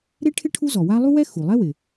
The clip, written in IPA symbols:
ɾe˥ʈʰɪ˥ ʈʰu˥zɔ˩wa˥ lˠu˥wɛ˥ xu˩lˠɛ˥ wɪ˩

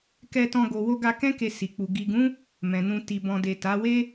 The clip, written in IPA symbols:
kɛ˧tɔ̃˧ ɡo˨wo˧ɡa˧kɛ̃˦ ke˧si˨k͡pu˨ ɡi˨ɡũ˨˦ | mɛ̃˨nũ˧ ti˨bɔ̃˨de˨ ta˨˦ we˦

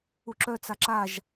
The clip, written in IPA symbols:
uǁœt͡sa ǁaʒ

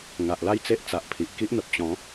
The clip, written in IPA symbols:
ŋa˨ʔla˥˧jt͡se˦ʔ t͡sa˨ʔpʰi˨ʔ ki˦ʔn̪ə˨p̚ t͡ɕɔ̃˨˦

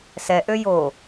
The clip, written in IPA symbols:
sɛʔø jo

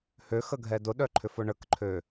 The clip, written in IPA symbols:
hø xəɡʱɛdʊɗœ ǃʰʏfʊɳəkǃʰø

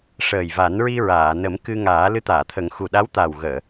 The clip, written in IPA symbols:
ʂəː˨˩jva˨˩˦nɹi˧ ɹaː˨˩˨nə˨˩˦mkɨ˧ ŋaː˨˩˦ lɨ˧˥t̪aː˨˩˨t̪ʰə˨˩˦ŋ xu˨˩ɗa˧˥wt̪aː˨˩w ɣəː˨˩˨

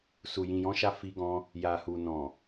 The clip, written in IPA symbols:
su˨jĩ˨jɔ̃˨˦ʃa˧ fi˧ɡɔ̃˧ | ja˨hu˨ nɔ̃˨

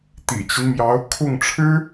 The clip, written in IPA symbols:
t̪ḭ˨˩t͡ɕi˦n mjɑ˧˥ʊ̯ kʰʊ˥˩ŋʈ͡ʂʰɻ̩˥

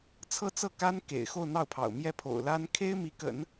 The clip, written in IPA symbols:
t͡sʰɤ˥˧t͡sɤ˥˩ka˥n kḛ˨˩ɪ̯xo˥˧ʊ̯n̪ɑ˥˩ʊ̯pʰɑ̰˨˩ʊ̯ mjɛ˥˩pʰo̰˨˩ʊ̯la˥n kʰe˥ɪ̯mi˧˥kə̰˨˩˦n

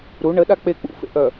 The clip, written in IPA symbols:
ɾu ɳəɗa k͡pe k͡pṵfḛʔœ

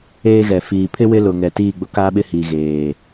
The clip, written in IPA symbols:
eː˦ɣɛ˨ fiː˨pʰɪ˦ wɪ˦lʊ˨ŋɛ˨ tiː˦˨ɡ͡bʊ˦ kaː˦ɓɪ˦hiː˨ ɣeː˨

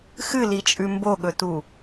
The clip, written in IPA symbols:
xɨlit͡ʃʼʉ mboɠɵtu

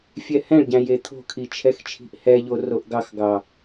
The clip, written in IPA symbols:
fʲɛhɛ̃ɭɟæ̃j et̪ʰo̤kʰi t͡ʃʰɛxt͡ʃʰi̤ʔhɛʎo roʔɡɑxɡɑ

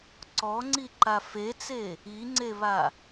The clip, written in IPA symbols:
ǀɔŋ͡ǀiǃa fet͡se | iŋ͡ǀeβa

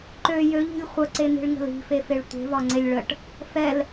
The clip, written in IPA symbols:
ǃø jøʎi̤lʲ χʷəǀen̪i̤ɭŋə̤l i̤fefeɭ tʷe̤vɒŋ͡ǀelʲ ɭəʈ | fɛl

